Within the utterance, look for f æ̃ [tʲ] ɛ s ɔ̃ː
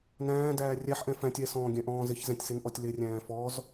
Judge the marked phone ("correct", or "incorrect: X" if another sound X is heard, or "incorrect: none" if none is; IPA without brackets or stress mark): correct